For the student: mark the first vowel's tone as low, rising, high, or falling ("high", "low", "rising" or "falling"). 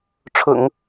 low